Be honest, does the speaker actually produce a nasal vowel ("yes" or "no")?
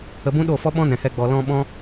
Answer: yes